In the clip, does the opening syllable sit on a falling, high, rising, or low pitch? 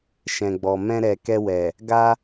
low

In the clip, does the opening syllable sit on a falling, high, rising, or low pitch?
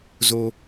low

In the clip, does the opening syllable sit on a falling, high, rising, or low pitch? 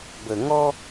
low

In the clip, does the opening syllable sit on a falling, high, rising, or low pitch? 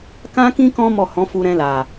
high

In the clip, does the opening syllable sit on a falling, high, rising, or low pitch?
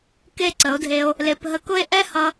falling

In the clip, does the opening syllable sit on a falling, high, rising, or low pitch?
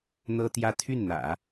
high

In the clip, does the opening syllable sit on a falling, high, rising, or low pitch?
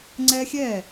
high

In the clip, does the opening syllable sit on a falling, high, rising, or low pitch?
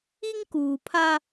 high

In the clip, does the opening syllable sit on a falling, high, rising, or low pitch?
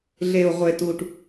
low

